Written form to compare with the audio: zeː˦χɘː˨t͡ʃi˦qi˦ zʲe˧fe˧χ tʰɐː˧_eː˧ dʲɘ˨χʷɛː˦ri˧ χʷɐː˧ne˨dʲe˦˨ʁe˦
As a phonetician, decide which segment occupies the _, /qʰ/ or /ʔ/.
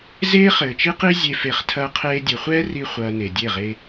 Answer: qʰ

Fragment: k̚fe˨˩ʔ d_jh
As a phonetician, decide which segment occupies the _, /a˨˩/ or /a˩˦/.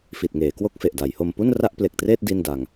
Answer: a˩˦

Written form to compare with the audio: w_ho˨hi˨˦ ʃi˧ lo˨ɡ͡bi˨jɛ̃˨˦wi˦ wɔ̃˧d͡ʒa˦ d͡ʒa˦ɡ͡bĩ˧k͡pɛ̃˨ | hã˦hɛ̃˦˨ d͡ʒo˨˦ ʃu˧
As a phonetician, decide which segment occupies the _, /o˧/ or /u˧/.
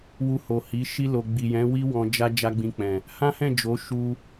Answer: u˧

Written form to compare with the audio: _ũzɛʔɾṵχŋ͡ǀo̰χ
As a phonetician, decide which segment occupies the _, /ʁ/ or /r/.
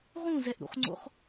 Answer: ʁ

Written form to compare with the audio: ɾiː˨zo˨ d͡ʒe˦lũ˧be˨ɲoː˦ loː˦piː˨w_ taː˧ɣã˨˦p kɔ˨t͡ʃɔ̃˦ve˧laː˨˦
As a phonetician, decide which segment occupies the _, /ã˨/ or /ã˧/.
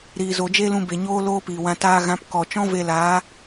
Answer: ã˧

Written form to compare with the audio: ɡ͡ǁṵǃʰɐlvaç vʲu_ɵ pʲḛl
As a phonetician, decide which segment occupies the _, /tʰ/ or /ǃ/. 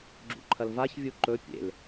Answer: ǃ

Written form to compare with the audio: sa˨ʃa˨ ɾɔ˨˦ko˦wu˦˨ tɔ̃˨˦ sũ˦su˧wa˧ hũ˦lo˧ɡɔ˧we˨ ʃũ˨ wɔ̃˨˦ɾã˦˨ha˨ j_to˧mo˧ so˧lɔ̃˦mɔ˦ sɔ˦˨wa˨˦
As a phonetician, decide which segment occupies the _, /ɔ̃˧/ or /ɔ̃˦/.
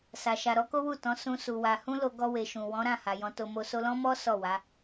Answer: ɔ̃˧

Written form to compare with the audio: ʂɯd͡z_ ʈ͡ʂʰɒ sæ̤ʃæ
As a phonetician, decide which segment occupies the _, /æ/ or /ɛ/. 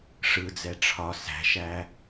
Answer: ɛ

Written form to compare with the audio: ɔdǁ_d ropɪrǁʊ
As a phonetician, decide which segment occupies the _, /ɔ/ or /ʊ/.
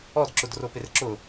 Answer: ʊ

